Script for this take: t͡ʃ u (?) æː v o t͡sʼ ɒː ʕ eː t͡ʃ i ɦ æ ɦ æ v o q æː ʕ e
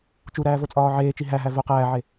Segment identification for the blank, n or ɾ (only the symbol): ɾ